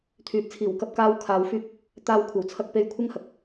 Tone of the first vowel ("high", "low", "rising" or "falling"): low